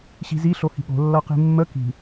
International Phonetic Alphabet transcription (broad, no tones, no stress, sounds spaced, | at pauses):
ɕ i̤ z i ɬ o h i̤ ɠ o̤ lː ʌ q i̤ mː ə k i̤